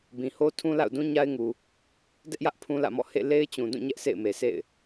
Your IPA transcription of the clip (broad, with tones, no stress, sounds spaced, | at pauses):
b ĩ˨ h o˦ tʰ ũ˦ l a̰˦˨ ʊ̯ d ũ˦ ɲ a˦ ɪ̯ ŋ u˨ | d ɛ˦ ʔ j ä˦ ʔ pʰ ũ˦ l ä̰˦˨ m ɔ̰˦˨ h ḛ˦˨ l e˦ ɪ̯ t͡ɕ ũ˨ d ũ˦˨ ɲ ɛ˦ ʔ sʰ ḛ˦˨ ɪ̯ m e˨ sʰ ḛ˦˨ ɪ̯